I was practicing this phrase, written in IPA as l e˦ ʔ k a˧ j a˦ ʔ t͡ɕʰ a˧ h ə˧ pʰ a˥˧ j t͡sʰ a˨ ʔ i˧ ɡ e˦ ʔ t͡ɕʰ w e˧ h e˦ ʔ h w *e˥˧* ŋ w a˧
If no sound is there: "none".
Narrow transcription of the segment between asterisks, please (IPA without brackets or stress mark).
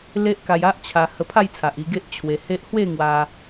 e˥˧